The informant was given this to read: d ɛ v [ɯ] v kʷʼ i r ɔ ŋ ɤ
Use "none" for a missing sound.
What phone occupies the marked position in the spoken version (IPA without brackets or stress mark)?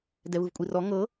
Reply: ɯ